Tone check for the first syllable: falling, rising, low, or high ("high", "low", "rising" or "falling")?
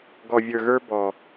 low